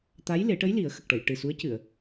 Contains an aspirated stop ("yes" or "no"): no